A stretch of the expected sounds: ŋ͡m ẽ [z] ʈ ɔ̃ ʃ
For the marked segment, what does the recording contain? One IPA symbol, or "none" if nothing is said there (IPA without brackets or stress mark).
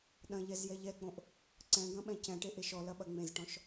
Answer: z